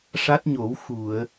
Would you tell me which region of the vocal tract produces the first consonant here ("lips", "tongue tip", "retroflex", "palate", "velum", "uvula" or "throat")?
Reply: retroflex